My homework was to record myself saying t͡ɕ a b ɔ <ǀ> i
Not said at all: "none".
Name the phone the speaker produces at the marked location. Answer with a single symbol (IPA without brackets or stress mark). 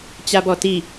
t